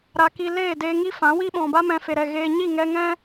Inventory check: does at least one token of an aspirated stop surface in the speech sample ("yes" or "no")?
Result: no